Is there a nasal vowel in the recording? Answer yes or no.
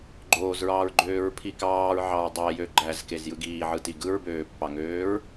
no